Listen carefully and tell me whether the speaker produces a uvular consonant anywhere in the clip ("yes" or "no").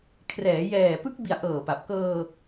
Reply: no